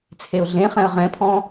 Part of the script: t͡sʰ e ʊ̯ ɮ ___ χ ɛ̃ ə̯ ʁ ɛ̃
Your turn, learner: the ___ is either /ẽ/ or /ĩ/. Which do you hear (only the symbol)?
ẽ